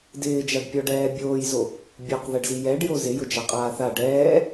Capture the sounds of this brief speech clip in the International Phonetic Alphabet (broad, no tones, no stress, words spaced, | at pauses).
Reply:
dɪːd͡ʒaɖpʲɔɖɛː bʲoːjzo | bʲoqðɛɖ zijɛɖjo zɪjʊ d͡ʒaqʼaːθa ɖɛː